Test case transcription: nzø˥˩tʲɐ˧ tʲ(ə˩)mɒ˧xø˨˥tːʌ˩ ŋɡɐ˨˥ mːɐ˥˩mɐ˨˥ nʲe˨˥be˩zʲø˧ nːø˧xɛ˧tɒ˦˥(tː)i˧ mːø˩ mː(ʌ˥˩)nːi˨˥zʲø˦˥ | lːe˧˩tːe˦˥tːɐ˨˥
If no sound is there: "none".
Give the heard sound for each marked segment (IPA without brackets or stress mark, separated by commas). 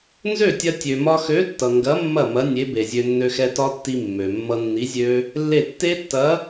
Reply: ø˩, tː, ʌ˧